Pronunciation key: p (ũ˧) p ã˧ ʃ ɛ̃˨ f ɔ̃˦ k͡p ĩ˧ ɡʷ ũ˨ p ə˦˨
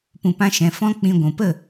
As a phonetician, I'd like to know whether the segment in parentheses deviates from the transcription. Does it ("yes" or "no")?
yes